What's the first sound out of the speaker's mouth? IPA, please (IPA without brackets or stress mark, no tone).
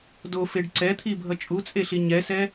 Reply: d